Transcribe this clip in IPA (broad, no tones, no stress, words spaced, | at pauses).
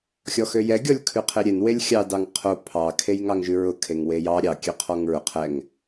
xʲɔxøjɛ ɡʲɔlʲkʰʉqʰeɾʲen welʲxʲɑ dɑŋqʰo pʰɑ kʰejŋɑŋʒʉɹʊ kʰeŋwejɑ ɾʲɑ kʲøqʰɔŋɹʊ qʰɛŋ